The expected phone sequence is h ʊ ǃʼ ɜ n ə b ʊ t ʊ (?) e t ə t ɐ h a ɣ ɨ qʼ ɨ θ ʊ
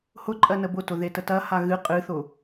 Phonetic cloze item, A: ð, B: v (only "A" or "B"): A